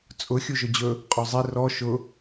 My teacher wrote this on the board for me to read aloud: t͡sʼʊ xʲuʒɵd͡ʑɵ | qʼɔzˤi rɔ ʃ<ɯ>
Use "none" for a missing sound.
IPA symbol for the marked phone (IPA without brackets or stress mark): ʊ